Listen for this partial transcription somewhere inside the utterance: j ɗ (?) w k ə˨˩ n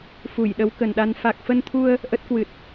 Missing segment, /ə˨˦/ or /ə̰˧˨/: ə˨˦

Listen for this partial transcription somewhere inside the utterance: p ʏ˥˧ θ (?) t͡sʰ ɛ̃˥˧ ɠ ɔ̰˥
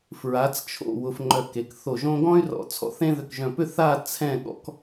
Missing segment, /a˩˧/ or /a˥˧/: a˥˧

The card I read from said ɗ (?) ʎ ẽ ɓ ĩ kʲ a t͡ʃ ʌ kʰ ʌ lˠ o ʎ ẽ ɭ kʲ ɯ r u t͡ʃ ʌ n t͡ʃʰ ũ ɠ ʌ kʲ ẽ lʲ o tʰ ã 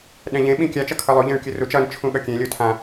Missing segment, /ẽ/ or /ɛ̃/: ɛ̃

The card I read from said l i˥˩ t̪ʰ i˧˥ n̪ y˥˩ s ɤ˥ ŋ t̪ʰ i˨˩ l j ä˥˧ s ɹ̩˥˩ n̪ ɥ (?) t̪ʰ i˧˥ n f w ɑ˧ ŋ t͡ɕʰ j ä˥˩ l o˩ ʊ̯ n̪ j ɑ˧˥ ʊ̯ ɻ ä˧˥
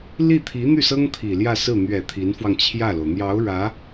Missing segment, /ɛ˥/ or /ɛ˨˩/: ɛ˨˩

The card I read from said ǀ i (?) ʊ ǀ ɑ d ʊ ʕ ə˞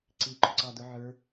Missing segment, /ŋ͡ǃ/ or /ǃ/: ǃ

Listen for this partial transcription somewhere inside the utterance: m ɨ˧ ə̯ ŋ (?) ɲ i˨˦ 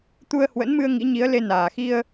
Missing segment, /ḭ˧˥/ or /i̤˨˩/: ḭ˧˥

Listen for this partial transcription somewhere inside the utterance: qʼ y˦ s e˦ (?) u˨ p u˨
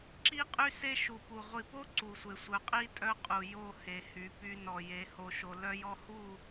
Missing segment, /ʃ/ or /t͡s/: ʃ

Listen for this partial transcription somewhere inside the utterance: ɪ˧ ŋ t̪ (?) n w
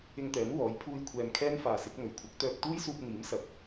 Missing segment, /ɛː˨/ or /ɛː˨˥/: ɛː˨˥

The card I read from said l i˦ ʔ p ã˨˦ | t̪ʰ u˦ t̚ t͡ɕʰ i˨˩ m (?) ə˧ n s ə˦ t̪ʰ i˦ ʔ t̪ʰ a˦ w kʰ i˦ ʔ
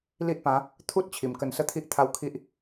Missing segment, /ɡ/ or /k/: k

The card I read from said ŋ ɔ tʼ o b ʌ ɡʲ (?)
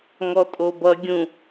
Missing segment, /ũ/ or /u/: ũ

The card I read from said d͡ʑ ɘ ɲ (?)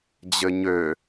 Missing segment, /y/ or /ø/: ø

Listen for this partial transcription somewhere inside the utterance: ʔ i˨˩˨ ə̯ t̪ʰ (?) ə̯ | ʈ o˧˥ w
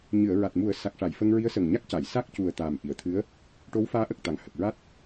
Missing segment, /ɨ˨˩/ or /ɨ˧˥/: ɨ˧˥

